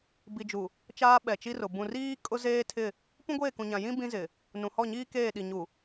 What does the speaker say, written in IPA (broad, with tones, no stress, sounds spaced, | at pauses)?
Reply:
b i˨ d͡ʒ u˨ | t͡ʃ aː˦ ɓ ɛ˨ t͡ʃ i˦ r ʊ˨ b ũ˨ r iː˦ kʼ ʊ˦ z eː˦ tʰ ɪ˦˨ | p ũ˦ ɡʷ eː˦˨ k ũ˨ ɲ ã˨ j ĩ˦ b ĩ˦ z ɪ˨ | n ũ˨ h ɔ˦˨ ɲ iː˦ k eː˦˨ ɗ i˨ ɲ u˨